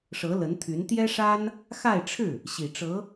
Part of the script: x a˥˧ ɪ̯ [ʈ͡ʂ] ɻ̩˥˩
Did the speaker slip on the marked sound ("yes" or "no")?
yes